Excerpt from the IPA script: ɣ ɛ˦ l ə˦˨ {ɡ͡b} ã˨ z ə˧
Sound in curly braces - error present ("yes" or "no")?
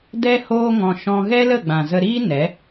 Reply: no